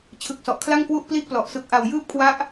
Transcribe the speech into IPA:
t͡ɕʰ ɯ˨˩ k̚ s ɔ˨˩ ʔ kʰ l a˥˩ ŋ k w u˥˩ ʔ p l i˥˩ ʔ p l ɔ˨˩ ʔ s ɯ˨˩ k̚ ʔ a˨˩ w j ɯː˦˥ p̚ kʰ w a˦˥ ʔ

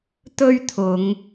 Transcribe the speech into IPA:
t̪ ɵ˥ ɥ t̪ʰ ʊ˨˧ ŋ

